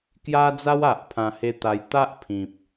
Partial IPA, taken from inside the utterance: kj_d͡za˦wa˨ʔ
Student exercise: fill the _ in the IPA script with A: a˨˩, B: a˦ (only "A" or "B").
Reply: B